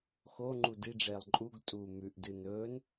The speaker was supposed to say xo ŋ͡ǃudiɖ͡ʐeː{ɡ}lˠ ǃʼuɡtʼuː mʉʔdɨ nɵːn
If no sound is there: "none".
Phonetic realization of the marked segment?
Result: none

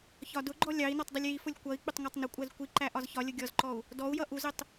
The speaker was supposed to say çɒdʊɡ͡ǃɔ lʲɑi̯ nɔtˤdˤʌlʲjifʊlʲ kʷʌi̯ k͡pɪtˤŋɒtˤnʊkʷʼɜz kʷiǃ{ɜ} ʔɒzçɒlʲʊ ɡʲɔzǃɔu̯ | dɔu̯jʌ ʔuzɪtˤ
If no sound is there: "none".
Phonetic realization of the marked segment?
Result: æ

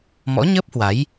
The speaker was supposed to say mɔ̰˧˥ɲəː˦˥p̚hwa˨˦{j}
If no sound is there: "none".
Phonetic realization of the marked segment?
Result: j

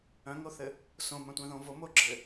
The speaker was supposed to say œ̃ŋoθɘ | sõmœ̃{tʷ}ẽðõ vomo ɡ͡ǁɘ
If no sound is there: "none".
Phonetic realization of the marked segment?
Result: tʷ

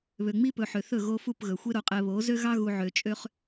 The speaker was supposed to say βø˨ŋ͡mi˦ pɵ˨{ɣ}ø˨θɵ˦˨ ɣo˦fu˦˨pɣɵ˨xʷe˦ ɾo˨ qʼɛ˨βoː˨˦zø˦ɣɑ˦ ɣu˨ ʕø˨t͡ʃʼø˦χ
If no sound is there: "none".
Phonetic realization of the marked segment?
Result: ħ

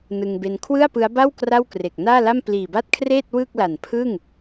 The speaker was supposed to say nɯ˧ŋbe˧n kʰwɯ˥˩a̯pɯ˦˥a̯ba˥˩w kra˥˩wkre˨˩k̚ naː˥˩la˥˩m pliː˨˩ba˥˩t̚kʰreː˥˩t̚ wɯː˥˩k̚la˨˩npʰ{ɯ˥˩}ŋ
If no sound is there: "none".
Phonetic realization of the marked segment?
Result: ɯ˥˩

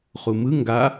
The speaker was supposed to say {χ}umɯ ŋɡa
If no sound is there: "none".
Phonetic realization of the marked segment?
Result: χ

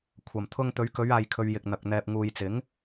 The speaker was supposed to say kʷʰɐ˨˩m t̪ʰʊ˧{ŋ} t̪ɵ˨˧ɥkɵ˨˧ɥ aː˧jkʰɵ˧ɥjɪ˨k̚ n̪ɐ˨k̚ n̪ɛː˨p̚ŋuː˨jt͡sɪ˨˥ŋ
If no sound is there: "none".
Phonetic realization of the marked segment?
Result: ŋ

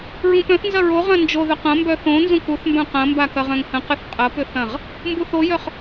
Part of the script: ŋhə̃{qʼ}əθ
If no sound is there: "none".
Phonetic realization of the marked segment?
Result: q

